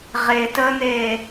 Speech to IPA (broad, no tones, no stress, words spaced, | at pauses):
ʁetəːn̪eː